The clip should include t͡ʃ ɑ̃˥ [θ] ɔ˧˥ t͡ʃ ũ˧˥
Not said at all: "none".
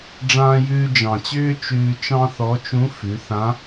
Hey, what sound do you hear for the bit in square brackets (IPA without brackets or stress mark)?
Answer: θ